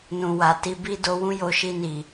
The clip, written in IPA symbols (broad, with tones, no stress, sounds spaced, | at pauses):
n ũ˨ w a˨ t i˧ b i˦ d o˧ w ũ˦ j o˧ ʃ i˧ n i˨